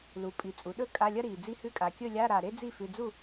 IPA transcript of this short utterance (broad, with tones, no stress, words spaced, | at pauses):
lu˩˧pʼi˩˧t͡sʼu˩˧ɗɵ˥˨ kʼa˧˥˧lʲɐ˥ɾi˨˩ d͡zi˧˥˧hʉ˧˥˧kʼa˨˩ kʲɵ˥˨lʲa˧˥˧ɾa˨˩ ɾe˥d͡zi˥˨ fʉ˧˥˧ d͡zu˥˨